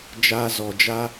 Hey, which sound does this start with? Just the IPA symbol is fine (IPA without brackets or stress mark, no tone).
d͡ʒ